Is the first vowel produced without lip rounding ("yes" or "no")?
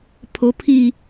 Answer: no